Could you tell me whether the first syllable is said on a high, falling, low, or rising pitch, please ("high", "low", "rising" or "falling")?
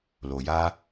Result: low